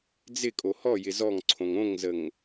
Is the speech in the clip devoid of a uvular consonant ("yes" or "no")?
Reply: yes